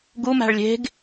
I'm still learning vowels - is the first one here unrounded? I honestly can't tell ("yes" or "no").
no